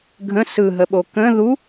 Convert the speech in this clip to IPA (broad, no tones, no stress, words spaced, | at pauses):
ɡʱə̃ sɯɦəɓo kə̃ ðu